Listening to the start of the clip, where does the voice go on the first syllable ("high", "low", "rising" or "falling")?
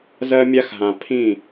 high